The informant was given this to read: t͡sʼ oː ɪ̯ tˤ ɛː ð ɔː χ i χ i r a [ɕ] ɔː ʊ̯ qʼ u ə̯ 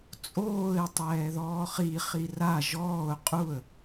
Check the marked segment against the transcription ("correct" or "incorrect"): incorrect